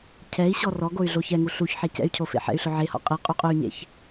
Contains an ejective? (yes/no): yes